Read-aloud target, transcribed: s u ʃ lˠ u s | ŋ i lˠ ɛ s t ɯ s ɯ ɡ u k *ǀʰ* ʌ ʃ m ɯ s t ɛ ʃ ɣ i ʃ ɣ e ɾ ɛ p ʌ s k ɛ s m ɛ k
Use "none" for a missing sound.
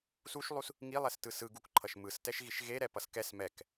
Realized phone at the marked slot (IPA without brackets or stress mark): ǃʰ